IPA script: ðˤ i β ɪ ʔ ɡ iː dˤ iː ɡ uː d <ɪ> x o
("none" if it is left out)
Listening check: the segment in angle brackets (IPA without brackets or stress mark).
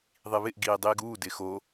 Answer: ɪ